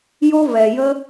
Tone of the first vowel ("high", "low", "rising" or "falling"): high